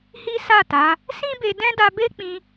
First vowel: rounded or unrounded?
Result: unrounded